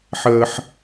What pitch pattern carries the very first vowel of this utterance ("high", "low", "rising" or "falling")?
high